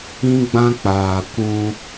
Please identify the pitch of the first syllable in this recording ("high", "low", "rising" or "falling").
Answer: high